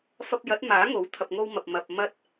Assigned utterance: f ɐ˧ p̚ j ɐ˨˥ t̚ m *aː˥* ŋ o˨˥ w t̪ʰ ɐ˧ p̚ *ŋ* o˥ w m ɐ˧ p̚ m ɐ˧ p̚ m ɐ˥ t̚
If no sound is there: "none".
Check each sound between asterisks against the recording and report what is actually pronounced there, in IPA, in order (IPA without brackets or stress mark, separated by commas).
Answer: aː˨˥, ŋ